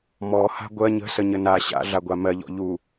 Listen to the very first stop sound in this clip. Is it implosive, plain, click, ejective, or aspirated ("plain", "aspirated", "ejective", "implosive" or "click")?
plain